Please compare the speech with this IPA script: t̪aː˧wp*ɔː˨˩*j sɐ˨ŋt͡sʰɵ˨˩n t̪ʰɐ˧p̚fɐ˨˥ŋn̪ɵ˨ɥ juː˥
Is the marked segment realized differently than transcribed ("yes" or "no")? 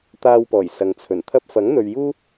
no